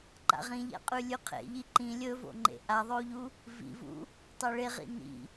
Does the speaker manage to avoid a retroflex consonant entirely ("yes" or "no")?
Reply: no